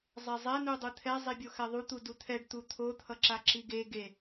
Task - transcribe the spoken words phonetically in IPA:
zˤ e zˤ ɛ n u dˤ ɯ t̪ʰ ɛ zˤ i bʲ o x ɛ ðˤ u t̪ u d u t̪ʰ ɛ ɖ t̪ u t̪ʰ o t̪ʰ ʌ ǁ a ǁ i ɡ e ɡ e

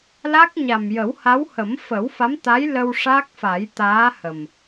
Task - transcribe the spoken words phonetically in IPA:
l a˦˥ k̚ ɲ a˨˩ m j ə˨˩˦ w h a˧˥ w h ə˨˩˦ m f ə˨˩˦ w f a˧˥ m t̪ a˧˥ j l ə˧ w ʂ a˦˥ k̚ f a˨˩˦ j t̪ aː˧˥ h ə˨˩ m

